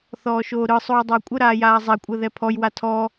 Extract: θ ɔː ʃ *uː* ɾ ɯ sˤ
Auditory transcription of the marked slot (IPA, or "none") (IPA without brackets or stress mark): oː